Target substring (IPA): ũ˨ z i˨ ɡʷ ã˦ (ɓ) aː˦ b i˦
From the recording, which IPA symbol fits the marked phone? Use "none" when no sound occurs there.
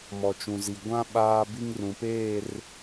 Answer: ɓ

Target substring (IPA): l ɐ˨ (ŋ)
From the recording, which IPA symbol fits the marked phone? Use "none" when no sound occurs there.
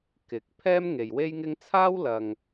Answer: ŋ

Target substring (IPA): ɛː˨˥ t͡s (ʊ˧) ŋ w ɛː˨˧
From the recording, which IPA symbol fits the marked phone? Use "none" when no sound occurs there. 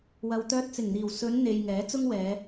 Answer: ʊ˥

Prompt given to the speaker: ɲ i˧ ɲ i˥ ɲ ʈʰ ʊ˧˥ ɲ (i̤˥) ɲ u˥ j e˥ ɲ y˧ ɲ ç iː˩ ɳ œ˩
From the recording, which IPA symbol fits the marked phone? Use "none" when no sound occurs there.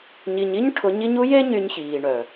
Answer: i˥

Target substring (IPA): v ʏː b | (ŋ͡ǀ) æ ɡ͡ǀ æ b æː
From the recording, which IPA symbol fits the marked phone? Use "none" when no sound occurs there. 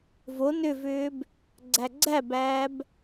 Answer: ɡ͡ǀ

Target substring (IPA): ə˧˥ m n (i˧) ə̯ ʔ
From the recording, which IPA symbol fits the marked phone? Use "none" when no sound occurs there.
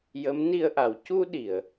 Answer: i˧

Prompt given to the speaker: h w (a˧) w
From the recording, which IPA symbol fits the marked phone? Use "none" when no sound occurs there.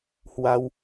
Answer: a˧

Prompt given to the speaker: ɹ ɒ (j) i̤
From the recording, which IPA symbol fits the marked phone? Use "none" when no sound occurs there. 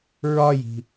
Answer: j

